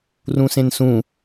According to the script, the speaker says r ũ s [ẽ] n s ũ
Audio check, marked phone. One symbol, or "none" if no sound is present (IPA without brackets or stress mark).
ẽ